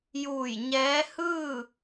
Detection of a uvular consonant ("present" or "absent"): absent